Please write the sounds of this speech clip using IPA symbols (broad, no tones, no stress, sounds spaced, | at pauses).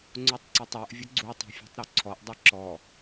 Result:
ŋ͡ǀ u tˤ ǀ i tˤ o ʔ vʲ ʊ ɡ͡ǀ u tˤ a̤ fʲ a̤ tˤ ɾ u ǀʰ ɔ ʔ dˤ ɪ ǁ ɔ